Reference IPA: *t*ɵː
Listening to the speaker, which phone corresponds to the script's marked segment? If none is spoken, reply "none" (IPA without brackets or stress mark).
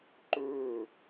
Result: ǃ